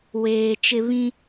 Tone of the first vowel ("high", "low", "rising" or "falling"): low